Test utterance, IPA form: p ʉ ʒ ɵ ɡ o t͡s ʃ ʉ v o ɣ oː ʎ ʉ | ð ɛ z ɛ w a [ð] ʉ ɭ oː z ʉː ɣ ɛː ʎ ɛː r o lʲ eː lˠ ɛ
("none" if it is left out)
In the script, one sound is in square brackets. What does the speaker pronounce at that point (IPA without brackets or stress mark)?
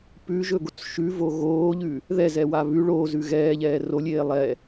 β